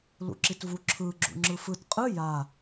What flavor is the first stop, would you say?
click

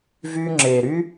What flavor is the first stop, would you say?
click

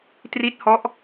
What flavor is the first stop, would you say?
plain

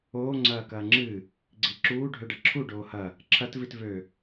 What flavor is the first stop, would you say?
click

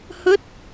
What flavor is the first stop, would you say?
plain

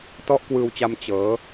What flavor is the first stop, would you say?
plain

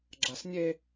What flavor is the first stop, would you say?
click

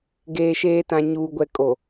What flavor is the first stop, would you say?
plain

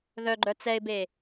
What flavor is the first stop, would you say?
click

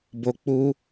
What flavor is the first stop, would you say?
plain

